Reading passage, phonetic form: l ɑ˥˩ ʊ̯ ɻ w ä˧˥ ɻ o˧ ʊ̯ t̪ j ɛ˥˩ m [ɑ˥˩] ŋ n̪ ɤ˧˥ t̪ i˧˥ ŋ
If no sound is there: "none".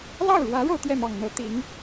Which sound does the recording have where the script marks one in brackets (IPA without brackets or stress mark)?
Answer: ɑ˨˩